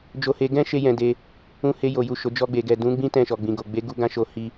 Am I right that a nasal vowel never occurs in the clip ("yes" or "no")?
no